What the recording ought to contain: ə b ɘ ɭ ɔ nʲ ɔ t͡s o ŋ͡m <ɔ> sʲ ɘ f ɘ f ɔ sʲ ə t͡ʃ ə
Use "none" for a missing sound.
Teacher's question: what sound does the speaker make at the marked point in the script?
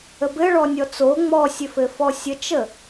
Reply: ɔ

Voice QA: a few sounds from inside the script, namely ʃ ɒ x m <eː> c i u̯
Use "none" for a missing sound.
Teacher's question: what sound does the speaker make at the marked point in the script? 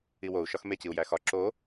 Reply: e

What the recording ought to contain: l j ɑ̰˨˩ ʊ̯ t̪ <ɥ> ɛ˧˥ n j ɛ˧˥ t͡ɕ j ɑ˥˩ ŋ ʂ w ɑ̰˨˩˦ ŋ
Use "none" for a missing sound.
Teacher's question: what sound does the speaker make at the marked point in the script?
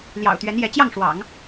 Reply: ɥ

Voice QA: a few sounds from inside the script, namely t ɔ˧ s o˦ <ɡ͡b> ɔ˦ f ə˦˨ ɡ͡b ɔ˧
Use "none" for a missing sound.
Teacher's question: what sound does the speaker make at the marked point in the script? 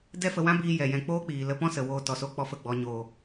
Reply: k͡p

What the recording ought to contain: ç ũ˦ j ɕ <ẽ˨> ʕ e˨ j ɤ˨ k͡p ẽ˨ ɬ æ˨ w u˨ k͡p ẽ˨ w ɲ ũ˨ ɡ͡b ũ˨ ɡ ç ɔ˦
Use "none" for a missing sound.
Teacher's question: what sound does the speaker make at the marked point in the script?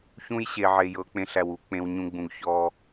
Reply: e˨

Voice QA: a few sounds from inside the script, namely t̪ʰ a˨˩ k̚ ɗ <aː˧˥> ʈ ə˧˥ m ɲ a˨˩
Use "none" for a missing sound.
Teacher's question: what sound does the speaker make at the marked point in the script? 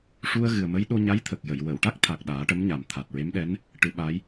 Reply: aː˨˩˦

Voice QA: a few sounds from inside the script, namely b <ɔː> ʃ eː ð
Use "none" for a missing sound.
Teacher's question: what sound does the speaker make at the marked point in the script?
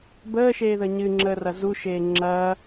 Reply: əː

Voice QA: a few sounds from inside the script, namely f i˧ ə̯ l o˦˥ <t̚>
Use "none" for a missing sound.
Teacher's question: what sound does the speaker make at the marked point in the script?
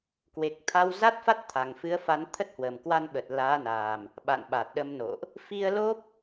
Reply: p̚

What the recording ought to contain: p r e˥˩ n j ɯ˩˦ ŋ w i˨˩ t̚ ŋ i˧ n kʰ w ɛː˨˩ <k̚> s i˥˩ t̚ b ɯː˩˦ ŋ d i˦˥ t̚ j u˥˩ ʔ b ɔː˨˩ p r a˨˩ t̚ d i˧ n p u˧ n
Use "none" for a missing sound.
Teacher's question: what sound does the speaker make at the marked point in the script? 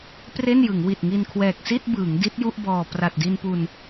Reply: k̚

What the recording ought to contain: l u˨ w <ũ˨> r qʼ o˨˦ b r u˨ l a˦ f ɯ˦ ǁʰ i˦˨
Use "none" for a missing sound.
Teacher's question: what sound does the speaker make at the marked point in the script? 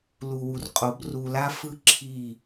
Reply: u˨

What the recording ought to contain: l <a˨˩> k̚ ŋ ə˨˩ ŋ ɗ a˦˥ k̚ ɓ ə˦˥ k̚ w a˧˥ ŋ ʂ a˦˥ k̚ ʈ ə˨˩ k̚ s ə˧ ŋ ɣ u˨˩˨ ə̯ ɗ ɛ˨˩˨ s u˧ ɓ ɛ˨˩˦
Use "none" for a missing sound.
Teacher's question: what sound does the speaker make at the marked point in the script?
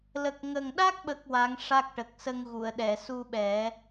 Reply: ə˨˩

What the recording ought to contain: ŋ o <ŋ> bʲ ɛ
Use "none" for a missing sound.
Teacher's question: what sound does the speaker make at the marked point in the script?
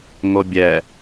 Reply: none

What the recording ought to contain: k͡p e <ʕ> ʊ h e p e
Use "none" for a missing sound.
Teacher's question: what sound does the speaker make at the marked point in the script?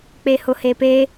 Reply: h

